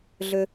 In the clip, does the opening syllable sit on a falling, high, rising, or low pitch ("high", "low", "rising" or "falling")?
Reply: high